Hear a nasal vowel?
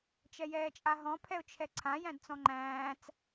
yes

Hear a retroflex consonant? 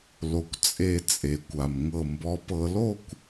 no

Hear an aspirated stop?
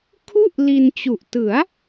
yes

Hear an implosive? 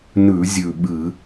yes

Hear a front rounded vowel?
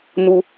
no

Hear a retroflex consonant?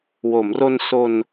no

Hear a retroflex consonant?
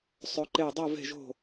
no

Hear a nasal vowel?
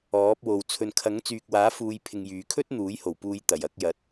no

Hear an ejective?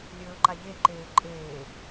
yes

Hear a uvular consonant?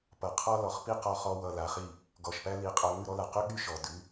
yes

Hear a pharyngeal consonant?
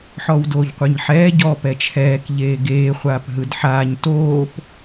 yes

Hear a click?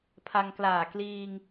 no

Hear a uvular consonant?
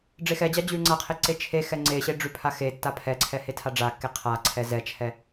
yes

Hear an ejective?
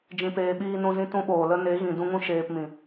no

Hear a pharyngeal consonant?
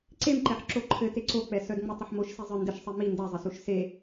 yes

